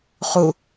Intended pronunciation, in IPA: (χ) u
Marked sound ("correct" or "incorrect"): correct